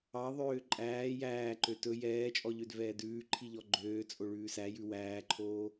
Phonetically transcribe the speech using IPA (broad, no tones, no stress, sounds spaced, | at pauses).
ɑ ðˤ øː ǃʼ æː j æː ǃ ø t ɵ j ɛː t͡ʃʼ ɔ ʎ ø d v ɛː d ʉː ǃʰ i ʎ ɔ ɡ͡ǃ øː t͡sʼ o ɭ ʉː s æ j ʉ w æː ǃʰ oː